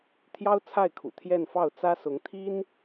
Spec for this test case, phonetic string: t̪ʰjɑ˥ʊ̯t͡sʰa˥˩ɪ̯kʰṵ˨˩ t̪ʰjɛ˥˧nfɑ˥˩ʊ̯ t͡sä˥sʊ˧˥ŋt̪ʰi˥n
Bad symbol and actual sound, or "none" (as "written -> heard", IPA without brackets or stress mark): none